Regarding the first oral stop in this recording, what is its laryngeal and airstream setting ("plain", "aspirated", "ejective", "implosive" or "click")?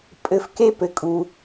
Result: ejective